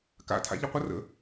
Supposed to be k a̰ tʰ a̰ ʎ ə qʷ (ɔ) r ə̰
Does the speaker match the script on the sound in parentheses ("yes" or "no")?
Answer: no